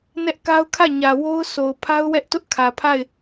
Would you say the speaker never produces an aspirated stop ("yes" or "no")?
no